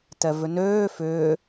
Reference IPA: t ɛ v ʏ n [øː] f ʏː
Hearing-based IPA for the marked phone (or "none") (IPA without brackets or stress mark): øː